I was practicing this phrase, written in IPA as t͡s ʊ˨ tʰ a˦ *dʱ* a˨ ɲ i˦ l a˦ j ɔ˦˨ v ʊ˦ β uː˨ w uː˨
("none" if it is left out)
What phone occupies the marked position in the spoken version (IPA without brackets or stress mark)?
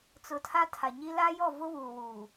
tʰ